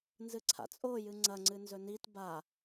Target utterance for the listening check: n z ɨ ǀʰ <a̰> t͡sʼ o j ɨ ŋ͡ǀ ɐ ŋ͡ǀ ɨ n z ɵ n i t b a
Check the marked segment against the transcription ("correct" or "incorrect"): correct